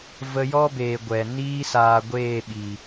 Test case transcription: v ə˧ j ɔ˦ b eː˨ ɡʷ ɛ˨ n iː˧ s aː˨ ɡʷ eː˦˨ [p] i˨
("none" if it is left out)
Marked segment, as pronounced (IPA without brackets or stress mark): ɓ